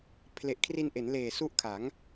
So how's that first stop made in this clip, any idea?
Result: aspirated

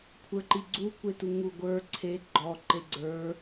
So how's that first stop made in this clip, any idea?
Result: aspirated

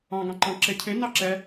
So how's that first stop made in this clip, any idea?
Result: plain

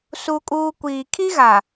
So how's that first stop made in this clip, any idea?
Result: ejective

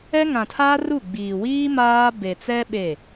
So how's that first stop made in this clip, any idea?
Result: aspirated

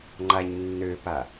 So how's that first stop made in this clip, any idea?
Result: click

